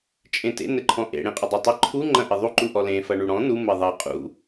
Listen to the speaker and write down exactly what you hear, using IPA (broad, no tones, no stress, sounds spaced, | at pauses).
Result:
t͡ʃʼ ẽ t ḛ n ɘ ǃʰ ɔ̃ ʔ ḛ ɽ ẽ qʼ ɘ dˤ ɐ tˤ ɘ ǃʰ u ŋ͡ǃ ɐ̃ ʔ ɘ ðˤ u ǃ u ʔ ɔ l ẽ f ɐ ɳ u ɽ ɔ̃ n u m ɘ ðˤ ɘ qʼ ṵ